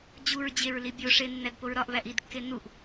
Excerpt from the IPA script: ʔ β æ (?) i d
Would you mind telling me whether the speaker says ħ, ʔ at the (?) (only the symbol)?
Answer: ʔ